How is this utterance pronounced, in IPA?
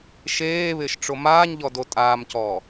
ʃ eː β ɪː ʃ ʈ͡ʂ o m aː ɲ ʎ ɔ d o tʼ aː m c ɔː

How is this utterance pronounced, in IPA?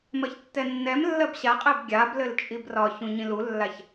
m ɜ ç tː ɛ nː ɛ m lː ɜ b ɕ a qʼ ɛ b ɡʲ a b l ɘ l t͡ʃʼ i b r ɒ ç ũ ɲ ĩ l u lː a ç

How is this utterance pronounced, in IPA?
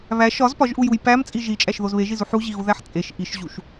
β æ ʃ ɒ z p ɒ ʒ ʔ u j u j p æ m t͡sʼ i ʒ i t͡ʃʼ æ ʃ ð o z β e ʒ i z u ħ u ʑ i ɣ u ð æ ħ t͡sʼ e ʃ ʔ i ʃ ʑ u ʃ

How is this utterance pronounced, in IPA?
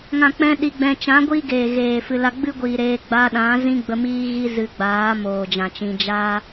ŋ ã˨ k͡p ɛ̃˧ ɗ i˨ ɡ͡b ɛ̃˨ t͡ʃ ã˨˦ ɡʷ iː˦ ɡ eː˨ ɣ eː˨ f ɨ˨ l a˧ ɡ͡b ɨ˦ ɡʷ iː˨ ɾ eː˧ ɡ͡b a˧ ɗ ã˨˦ z ĩ˦ ɡ͡b ə˧ m iː˦ ɣ i˦ z ɨ˧ ɡ͡b aː˨˦ m oː˨ d͡ʒ ã˨ t͡ʃ ĩ˧ d͡ʒ aː˦

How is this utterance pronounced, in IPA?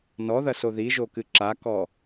n ɔ ð ɐ s o ð i ʒ o k ɨ ǁ a k ɔ

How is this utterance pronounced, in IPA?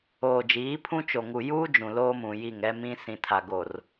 oː˨ d͡ʒ iː˨˦ pʰ ũ˦ t͡ʃ o˨ ŋ u˨ j uː˦ d͡ʒ ũ˨ l oː˦ m ũ˨ j i˦˨ ŋ ɛ˦ m ĩ˦ s ĩ˨ tʰ a˨ ɡ o˨ r

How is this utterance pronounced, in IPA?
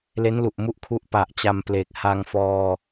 l e˦˥ n l u˨˩ ʔ m u˦˥ ʔ kʰ u˦˥ ʔ p a˨˩ ʔ t͡ɕ a˧ m p l eː˨˩ k̚ h a˧ ŋ f ɔː˧

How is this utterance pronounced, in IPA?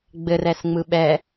ɡ͡b ɘ r ɛ s ŋ͡m ɯ ɓ ɛ

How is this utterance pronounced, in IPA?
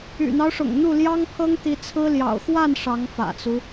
y̰˨˩ n̪ ɑ˦ ʊ̯ ʂ ʊ̰˨˩ ŋ n̪ u˥˩ l j ɑ˥ ŋ pʰ ɤ˥ ŋ t̪ i˧˥ t͡sʰ ɹ̩˥ l j ɑ̰˨˩ ʊ̯ x w a˥˩ n ʂ ɑ˧˥ ŋ f ä̰˨˩ t͡s u˦

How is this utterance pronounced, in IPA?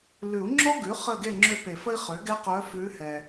l ʉ˨˩˦ u̯ ŋ͡ǁ ɔ˥ ɡ ʉ˩˥ χ ə˦˨ ɡ e˦˨ ŋ͡ǁ ø˦˨ p e˨˩˦ f ə˥ i̯ χ ø˩˥ ɡ ɛ˥ q œ˧˥ f ʉ˧˥ h ɛ˨

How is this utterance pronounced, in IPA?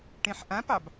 ʈ ẽ ħ ʔ ã p ɑ b

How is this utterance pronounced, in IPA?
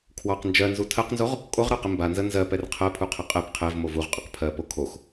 kʰ w ɑ q n d͡ʒ ɜ n z u tʰ ɜ q n z o ʁ | kʼ o ʁ ɾ ɑ q ɪ m b a n z ə n z ɜ p ɛ r qʰ ɜ pʰ u qʰ ɪ qʼ ɛ p qʰ ɛ v m o v u ʁ qʼ ə q pʰ ɜ p o kʰ o x

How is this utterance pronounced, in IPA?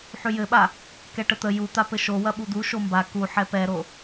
ħ y j ɘ ɓ a | k ɛ ʈ ə t̪ ə j u t̪ a p ɘ ʃ o w ɐ ɓ u d̪ u ʃ o m b a k u ħ ɛ p ɛ ɾ o

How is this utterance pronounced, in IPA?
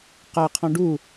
q a qʰ ɔ̃ ɖ u

